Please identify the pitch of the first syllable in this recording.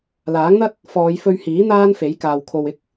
rising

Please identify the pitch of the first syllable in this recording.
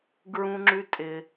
high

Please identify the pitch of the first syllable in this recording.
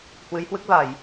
rising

